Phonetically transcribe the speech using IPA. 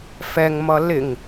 fɛŋmʌ lɪŋ

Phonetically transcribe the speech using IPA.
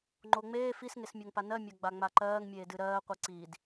ŋ͡ǃoŋ͡meː fisŋesmʲoŋpa nɜmʲa ɡ͡baŋ͡maǃɜːŋmʲeː dɨɾɜːqʷɯ ǀiːd

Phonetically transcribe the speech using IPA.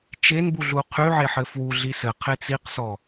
t͡ʃenbuɮu qʰyʕeħɘ fwuɮi sɘqʰe t͡siqsɔ

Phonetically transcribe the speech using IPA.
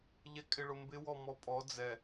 ʎɛkʼɪɭʊmbɪ wɔmɔpʼɔ d͡zɛ

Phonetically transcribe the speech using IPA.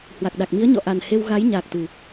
hwa˨˩k̚ɗa˨˩k̚mi˨˦ə̯ ɲɔ̰˧˨ʔa˨˩n he˧w ɣa˨˦j ɲaː˨˩k̚t̪ɨ˨˩

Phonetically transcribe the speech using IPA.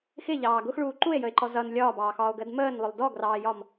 xɪʎɑː ɡʊxɭuː ǃue̯jəe̯ǃɔ zʌn lʲɒːbɑːxɒːo̯ɡɜd məːnlˠʊlˠ dɔɡrɑːjɒm

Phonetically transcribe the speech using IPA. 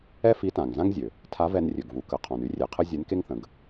ɛ˥fi˧˥tã˩ŋ zã˥ŋzʲø˩ | tʰa˧˥vɛ˧nrʲø˩ɡvu˩˧ kə˩˧ qʰɔ̃˩ny˧˥rʲe˩˧qʰə˥ zʲe˧˥nke˥ŋθə̃˩˧ɡ

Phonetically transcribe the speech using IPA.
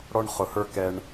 ɽɔ˧ɳχʊ˨hə˞˧ kɛ˧ɳ

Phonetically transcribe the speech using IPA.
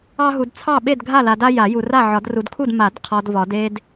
ɑ˦ɦu˨d t͡sʰɑ˥˨ɓe˥˨d ɡʱa˥˨la˨da˦ ja˨˩˦ju˨ra˥˨ ʕɒ˨˩˦dru˨dkʰu˥˨d ma˨˩˦dqʰɒ˨d vɒ˨˩˦d e˦d

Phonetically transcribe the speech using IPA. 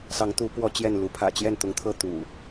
sɑ˨˦ŋt̪u˨˦ pwɔ˦t͡ɕjɛ˥˨nlu˨˦ pʰä̰˨˩t͡ɕjɛ˥˨nt̪ʊ˨˦ŋt̪ʰɤ˥˨ t̪ṵ˨˩

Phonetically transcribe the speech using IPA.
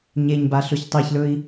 ɲeɲba ɬɵçtˤiçlɵi̯

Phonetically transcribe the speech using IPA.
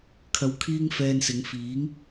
kʰɐ˧wkʰiː˥ŋfɛː˧nsɪ˨˧ŋ fiː˨˥ŋ

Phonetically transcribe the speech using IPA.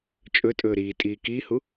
t͡ʃʼɵtʼɵː ɾiːtʼiː kiːhu

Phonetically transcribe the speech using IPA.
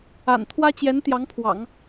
a̰˨˩nt̪ʰwä˥t͡ɕjɛ˧˥n t̪jɑ˧˥ŋpʰwɑ̰˨˩˦ŋ

